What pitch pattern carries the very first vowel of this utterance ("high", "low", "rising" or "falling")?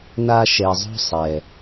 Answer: high